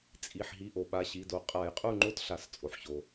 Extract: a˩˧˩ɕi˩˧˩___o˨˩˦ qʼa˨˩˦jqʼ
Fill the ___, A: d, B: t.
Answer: A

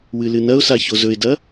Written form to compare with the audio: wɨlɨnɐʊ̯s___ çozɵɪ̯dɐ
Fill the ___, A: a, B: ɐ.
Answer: A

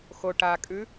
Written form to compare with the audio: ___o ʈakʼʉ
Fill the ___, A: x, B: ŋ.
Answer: A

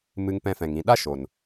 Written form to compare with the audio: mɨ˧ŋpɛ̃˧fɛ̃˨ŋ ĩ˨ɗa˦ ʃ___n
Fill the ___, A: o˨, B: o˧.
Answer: A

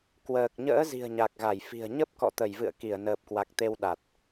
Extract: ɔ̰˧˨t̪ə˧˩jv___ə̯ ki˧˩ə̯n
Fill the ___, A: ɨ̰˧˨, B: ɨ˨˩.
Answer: A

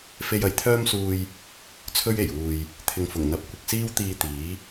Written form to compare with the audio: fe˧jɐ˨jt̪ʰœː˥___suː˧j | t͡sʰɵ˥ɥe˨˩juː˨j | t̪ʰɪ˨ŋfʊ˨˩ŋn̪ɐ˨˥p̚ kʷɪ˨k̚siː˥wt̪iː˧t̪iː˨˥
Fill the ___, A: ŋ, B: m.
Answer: B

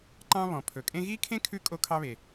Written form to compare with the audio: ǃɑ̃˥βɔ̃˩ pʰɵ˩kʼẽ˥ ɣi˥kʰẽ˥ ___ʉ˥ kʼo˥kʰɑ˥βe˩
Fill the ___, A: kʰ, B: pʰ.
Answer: A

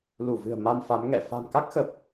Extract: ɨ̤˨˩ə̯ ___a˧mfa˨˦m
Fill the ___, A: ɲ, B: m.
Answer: B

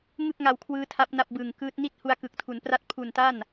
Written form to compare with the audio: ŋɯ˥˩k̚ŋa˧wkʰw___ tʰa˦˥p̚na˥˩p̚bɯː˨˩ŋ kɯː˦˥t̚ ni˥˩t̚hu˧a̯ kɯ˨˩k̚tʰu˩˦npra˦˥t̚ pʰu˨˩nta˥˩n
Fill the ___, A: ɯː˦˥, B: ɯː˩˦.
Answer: A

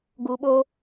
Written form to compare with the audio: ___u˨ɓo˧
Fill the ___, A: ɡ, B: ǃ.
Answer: A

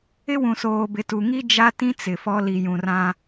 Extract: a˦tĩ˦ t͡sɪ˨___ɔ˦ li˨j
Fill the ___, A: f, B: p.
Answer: A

